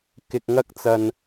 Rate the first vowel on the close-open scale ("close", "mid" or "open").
close